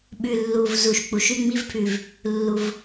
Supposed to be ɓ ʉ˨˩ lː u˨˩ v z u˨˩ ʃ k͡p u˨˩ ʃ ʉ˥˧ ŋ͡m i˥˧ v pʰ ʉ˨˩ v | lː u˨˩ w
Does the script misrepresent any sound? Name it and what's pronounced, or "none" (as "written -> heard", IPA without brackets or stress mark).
w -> v